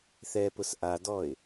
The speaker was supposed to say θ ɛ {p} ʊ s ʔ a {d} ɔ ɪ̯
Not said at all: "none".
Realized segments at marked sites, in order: p, d

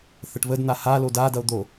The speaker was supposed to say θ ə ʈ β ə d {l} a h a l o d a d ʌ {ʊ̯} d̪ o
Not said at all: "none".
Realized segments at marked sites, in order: n̪, ʊ̯

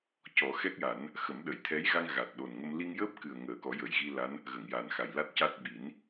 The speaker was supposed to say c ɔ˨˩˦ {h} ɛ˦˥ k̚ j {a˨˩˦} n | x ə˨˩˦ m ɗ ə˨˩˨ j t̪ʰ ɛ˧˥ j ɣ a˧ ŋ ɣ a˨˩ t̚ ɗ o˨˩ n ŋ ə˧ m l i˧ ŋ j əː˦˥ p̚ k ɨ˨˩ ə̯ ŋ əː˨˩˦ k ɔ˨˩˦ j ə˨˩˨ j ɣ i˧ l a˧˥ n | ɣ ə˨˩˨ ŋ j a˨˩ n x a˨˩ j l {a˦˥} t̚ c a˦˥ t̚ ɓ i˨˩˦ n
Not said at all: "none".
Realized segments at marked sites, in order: x, a˨˩˦, a˦˥

